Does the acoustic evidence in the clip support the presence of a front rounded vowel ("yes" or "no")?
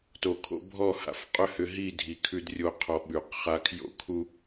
yes